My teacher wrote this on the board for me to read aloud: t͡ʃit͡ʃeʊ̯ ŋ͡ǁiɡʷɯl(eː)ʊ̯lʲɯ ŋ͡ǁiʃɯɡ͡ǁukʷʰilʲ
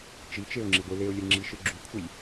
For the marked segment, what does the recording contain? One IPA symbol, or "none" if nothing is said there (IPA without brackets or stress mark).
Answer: e